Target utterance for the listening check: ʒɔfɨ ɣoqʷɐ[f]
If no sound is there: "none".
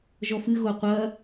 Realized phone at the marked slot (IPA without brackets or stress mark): none